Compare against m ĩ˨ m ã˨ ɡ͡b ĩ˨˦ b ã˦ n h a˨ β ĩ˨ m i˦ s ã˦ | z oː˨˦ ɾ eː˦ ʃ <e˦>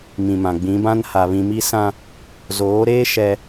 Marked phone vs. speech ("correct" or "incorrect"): incorrect